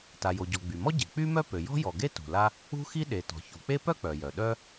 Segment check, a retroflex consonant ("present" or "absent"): absent